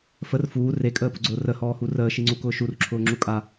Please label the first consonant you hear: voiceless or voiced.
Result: voiceless